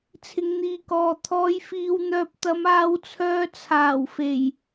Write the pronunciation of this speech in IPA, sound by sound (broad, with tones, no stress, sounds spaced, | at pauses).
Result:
t͡sʰ ɪ˧ ŋ n̪ iː˧ k ɔː˨ t̪ʰ ɔː˨˧ j f iː˨ w n̪ œː˨ p̚ t̪ ɐ˨˧ m aː˧ w t͡sʰ œː˧ t͡sʰ aː˨˩ w f e˨˩ j